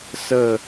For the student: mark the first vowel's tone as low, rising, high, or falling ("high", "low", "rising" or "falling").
falling